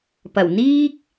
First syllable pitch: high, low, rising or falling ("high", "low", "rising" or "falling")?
low